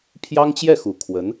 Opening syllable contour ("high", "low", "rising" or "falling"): high